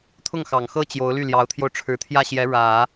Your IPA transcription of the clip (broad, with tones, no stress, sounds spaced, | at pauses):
t̪ʰ ʊ˥˩ ŋ x ɑ˨˩ ŋ x ɤ˥ t͡ɕ j o˧˥ ʊ̯ l y˥˩ l j ɑ˧˥ ʊ̯ t̪ʰ j o˧ ʊ̯ ʈ͡ʂʰ ɻ̩˧˥ t̪ʰ j ä˥˩ ɕ j ɛ˧˥ ɻ ä˨˩˦